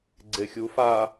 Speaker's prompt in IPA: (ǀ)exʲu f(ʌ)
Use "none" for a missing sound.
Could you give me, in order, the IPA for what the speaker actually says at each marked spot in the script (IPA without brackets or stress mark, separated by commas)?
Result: ɡ͡ǀ, a